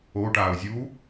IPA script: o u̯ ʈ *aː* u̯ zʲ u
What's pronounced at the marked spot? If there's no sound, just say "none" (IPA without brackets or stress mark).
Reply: aː